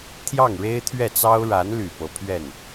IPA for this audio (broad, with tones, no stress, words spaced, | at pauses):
t̪ʰjɑ˥˩ŋɻe˥ɪ̯t̪ʰɥɛ˥˩t͡sɑ˥ʊ̯ ɻa˧˥nly˨˩ pɤ˧˥pʰɥɛ˥˩n